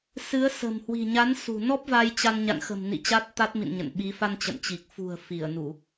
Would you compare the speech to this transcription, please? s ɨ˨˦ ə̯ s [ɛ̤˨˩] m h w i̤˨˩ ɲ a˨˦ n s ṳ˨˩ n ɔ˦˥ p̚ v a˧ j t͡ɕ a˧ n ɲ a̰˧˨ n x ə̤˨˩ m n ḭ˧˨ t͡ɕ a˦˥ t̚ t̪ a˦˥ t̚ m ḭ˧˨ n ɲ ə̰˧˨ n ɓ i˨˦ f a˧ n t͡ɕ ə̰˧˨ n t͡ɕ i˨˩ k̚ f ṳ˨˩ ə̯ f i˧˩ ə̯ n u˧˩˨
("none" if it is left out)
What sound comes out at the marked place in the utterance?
ə̤˨˩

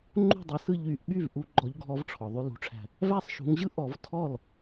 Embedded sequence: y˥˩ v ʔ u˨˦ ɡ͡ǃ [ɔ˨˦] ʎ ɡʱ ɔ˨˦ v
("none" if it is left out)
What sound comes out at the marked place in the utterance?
ɔ˨˦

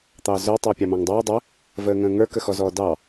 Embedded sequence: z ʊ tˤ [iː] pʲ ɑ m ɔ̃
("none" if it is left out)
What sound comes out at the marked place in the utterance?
ɪː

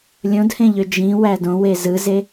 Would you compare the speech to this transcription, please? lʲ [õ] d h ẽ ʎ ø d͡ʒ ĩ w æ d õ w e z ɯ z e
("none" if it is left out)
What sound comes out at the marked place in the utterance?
õ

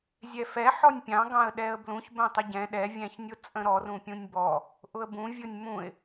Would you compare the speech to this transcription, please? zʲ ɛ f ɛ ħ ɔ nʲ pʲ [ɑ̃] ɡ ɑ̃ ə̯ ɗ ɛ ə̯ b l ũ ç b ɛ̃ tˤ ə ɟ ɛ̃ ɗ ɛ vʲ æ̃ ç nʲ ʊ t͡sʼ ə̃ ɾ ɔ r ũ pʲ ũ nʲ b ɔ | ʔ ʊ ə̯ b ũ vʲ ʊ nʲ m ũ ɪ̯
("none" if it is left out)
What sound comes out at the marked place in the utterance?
ɑ̃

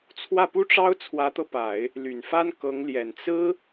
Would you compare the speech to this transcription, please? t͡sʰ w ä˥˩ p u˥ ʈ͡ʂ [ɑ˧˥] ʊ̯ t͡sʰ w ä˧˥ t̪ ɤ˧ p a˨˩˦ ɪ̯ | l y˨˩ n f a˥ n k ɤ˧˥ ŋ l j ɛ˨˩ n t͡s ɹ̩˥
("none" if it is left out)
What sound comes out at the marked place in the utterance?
ɑ˥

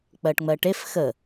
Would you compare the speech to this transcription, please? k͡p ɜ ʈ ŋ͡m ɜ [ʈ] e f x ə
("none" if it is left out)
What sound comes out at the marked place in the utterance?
ʈ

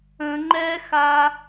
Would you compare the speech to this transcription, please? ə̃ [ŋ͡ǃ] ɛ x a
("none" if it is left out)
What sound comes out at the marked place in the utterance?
ŋ͡ǃ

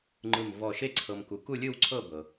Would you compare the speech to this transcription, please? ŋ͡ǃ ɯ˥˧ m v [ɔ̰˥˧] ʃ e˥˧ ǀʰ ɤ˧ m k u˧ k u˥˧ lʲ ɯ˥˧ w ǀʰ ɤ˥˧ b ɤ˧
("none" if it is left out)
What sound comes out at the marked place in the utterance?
ɔ˥˧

